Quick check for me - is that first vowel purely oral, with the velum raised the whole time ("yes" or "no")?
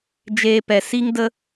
yes